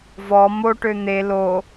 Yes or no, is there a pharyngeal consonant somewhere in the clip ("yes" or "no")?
no